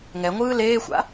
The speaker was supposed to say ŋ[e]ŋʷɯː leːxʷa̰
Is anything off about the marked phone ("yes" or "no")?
yes